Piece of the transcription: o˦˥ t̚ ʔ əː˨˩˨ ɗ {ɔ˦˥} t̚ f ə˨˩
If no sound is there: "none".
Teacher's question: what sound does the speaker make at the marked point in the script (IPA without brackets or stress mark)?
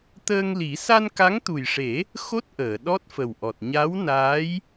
ɔ˦˥